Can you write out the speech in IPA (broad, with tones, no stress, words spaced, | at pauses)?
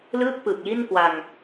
lɯː˥˩k̚pɯ˨˩k̚ji˥˩nkwa˧ŋ